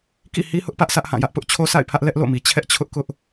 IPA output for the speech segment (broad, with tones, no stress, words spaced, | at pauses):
kḭ˦˨ hi˦hʊ˦ʔpä˦ʔ sʰä˦ʔhã˦˨jä˦ʔpʊ˦ʔ t͡ɕʰo˦sa̰˦˨ɪ̯pʰä˦ʔ lɛ˦ʔlo̰˦˨mi˨ t͡ɕʰɛ˦ʔt͡ɕʰʊ˦ʔ kʊ˦ʔ